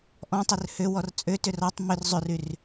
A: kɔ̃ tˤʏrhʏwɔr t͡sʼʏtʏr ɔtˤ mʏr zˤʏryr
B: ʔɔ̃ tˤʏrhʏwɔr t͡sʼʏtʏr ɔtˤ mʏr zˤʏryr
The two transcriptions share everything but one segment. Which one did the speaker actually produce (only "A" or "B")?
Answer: B